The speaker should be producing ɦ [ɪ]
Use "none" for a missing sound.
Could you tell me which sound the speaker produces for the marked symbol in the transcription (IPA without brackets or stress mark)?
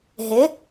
ɪ